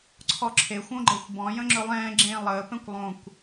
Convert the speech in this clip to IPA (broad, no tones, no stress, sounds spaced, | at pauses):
ǀʰ ɔ ǁʰ e xʷ õ ɡ͡ǃ ɛ xʷ b ɔ̃ j ə̃ ŋ͡ǁ ɵ lˠ ɛ̃ː ɡ͡ǁ ẽː lˠ əː p ɛ̃ kʷ lˠ õ kʷ